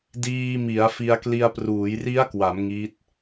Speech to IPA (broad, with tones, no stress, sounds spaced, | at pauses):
d iː˧ m i˩˦ a̯ f i˧ a̯ k l i˧ a̯ p r uː˩˦ j r i˦˥ a̯ k w a˩˦ m ŋ i˦˥ t̚